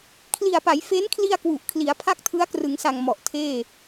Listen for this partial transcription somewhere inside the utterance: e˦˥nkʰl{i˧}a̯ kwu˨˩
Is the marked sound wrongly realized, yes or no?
no